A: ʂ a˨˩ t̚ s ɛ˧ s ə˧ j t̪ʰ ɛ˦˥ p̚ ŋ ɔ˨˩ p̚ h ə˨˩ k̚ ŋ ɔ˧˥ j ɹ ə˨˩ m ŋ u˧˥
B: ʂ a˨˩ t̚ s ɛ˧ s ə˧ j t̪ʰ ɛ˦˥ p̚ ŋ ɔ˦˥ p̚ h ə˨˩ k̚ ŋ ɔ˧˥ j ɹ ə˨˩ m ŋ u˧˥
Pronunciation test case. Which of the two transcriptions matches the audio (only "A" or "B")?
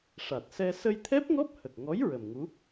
B